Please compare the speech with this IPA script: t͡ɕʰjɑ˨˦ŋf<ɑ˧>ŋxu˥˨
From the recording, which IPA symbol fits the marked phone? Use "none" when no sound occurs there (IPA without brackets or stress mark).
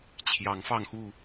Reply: ɑ˧